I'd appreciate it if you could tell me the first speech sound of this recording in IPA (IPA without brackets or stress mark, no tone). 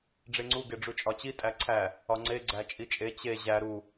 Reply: ɖ͡ʐ